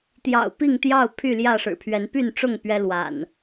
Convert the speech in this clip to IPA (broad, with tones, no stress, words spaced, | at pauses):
t̪jɑ̰˨˩ʊ̯ pi˥˨ŋt̪jɑ˥˨ʊ̯ pʰy˥˨ljä˥˨ʂɻ̩˨˩pʰɥɛ˨˦n py˥˨nʈ͡ʂʊ˥˨ŋ pɥɛ˦lwa̰˨˩n